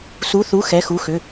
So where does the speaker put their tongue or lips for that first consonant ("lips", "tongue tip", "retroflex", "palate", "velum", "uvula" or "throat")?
tongue tip